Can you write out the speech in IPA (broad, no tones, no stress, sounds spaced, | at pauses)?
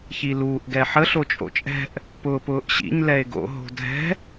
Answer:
ç i l uː ʔ ɡ ɛ ħ ə ɬ o t͡ʃʼ o̰ t͡ʃʼ ɛ̤ ʔ | p ʊː p ʊː ʔ ɕ ḭ ɲ l ɛ e̯ ɡ o̰ ɦ o̤ dʱ ɛ̤